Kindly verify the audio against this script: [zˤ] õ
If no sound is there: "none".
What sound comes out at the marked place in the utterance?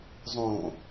zˤ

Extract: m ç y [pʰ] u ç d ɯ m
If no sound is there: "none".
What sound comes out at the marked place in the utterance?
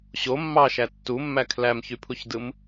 pʰ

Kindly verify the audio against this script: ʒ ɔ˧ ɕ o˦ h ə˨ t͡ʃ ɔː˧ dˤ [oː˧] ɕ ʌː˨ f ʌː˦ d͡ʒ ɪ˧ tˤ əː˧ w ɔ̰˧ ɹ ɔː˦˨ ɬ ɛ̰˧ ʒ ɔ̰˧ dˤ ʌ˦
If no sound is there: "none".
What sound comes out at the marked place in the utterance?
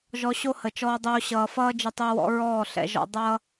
oː˧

